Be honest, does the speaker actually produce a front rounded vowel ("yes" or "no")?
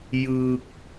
no